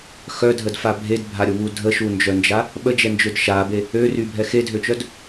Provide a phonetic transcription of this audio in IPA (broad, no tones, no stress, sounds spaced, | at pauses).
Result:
x œ dʱ ə d f a bʱ e d bʱ a ɾʲ o β u dʱ ə ʃ u n d͡ʒ œ n d͡ʒ a | ɓ ə d͡ʒ ɛ n d͡ʒ ø d ʃ a b e | ø r y bʱ ɛ x e dʱ ø t͡ʃ œ d